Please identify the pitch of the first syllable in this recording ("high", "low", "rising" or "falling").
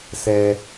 high